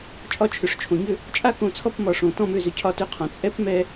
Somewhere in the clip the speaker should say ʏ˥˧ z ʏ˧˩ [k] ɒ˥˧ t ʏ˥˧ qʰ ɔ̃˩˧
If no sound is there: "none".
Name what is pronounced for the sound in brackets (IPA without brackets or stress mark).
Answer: cʰ